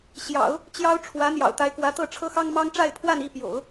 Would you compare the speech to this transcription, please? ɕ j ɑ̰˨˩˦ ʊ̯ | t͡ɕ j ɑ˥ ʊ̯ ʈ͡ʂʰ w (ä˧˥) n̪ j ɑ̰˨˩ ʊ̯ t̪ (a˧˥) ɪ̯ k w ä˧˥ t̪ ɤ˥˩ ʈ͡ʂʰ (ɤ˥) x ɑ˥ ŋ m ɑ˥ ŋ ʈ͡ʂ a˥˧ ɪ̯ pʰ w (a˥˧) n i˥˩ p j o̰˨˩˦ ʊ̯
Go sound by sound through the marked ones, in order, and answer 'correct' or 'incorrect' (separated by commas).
correct, correct, correct, correct